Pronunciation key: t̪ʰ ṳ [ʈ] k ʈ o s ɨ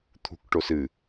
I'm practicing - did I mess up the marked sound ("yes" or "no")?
yes